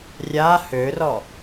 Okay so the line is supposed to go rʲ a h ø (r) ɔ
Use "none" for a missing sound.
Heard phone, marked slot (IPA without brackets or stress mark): r